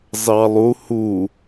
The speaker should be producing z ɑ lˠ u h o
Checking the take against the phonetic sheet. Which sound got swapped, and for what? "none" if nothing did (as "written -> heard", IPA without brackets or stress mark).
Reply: o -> u